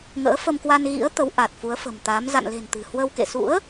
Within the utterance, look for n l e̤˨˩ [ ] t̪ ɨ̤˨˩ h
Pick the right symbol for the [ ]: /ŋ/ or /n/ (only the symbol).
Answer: n